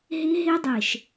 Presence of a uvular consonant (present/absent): absent